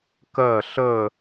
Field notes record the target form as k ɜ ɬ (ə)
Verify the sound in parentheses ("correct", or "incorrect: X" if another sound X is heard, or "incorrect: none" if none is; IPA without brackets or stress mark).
correct